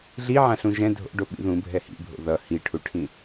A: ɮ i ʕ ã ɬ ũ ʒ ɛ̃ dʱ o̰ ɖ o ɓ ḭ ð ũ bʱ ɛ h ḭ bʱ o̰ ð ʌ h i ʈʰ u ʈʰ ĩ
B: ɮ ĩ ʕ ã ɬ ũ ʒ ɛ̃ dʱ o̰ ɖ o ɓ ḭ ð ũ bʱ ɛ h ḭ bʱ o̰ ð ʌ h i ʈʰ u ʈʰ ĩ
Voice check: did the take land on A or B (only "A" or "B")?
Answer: A